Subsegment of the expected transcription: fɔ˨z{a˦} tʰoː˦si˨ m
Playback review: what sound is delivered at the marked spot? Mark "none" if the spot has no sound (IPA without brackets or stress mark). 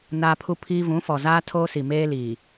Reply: aː˦